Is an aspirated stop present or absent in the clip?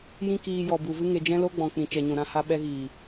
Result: absent